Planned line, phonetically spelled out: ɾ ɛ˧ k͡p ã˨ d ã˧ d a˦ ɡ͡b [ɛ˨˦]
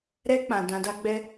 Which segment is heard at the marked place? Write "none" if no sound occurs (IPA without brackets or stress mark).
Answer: ɛ˦